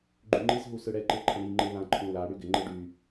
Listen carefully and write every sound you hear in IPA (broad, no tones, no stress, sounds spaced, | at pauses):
ɡ͡ǃ y ŋ͡ǃ i z ɦ u s ɯ ɽ ɛ ǃ ɯ ǃʰ ə̃ ɽ i ŋ͡ǃ ɯ l ã ǃʰ ũ l a ɽ y ɡ ɪ ŋ͡ǃ ɯ ɖ y